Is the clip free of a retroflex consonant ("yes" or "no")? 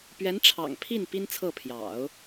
no